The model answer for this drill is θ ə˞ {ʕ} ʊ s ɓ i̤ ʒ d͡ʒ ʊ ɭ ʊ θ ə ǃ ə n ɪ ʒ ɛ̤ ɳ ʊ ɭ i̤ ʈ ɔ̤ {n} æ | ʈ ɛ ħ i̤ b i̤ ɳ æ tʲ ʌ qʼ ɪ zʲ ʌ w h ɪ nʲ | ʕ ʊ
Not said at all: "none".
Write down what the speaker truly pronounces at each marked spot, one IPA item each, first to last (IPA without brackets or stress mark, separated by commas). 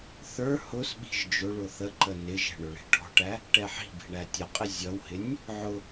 h, ʈ